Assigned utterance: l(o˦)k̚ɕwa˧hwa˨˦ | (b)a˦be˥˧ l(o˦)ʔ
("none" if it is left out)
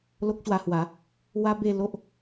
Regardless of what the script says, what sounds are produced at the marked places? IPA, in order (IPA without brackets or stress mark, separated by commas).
o˦, w, o˦